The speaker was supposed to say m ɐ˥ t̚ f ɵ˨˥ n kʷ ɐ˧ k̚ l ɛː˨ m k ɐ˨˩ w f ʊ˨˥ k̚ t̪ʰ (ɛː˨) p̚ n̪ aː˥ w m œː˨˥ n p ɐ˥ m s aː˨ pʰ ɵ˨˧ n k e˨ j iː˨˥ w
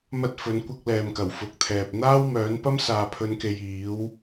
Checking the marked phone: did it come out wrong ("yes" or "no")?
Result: no